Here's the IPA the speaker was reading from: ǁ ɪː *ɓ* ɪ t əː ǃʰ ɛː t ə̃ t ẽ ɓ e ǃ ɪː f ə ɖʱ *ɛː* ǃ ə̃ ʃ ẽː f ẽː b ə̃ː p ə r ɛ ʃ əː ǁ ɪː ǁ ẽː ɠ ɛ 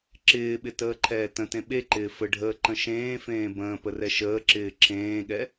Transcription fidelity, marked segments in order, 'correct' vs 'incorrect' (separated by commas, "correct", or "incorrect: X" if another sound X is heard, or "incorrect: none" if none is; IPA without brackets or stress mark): correct, incorrect: əː